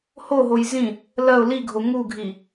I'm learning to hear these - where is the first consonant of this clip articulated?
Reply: throat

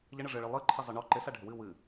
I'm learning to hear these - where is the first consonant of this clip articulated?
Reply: palate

